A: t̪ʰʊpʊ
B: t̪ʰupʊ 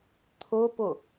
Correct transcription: A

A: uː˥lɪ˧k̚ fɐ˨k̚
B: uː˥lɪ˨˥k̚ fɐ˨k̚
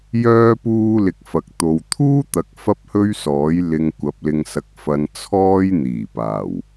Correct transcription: A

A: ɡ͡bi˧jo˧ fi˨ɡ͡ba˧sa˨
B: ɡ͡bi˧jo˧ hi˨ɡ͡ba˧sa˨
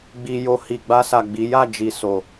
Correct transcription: B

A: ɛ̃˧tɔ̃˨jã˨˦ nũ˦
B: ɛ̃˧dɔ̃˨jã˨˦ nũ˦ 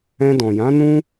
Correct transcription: B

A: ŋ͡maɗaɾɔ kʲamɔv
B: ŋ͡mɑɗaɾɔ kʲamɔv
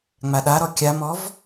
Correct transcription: A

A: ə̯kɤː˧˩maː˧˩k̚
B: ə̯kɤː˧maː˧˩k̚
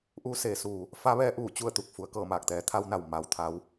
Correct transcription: A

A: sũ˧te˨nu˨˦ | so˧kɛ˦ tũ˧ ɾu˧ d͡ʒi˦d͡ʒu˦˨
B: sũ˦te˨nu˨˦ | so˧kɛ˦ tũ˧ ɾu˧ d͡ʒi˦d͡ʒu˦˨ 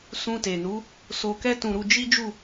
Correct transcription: A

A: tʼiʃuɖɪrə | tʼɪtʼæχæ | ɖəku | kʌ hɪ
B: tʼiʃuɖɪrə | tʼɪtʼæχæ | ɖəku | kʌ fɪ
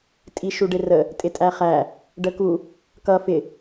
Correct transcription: B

